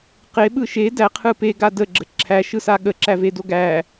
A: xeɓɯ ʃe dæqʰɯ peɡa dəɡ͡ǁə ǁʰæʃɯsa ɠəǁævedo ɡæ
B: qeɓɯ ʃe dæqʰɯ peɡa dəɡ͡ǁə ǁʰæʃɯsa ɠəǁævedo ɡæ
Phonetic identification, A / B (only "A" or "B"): B